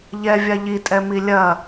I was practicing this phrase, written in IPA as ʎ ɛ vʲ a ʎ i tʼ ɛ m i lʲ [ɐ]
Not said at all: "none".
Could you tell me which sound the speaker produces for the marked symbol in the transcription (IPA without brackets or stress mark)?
ɐ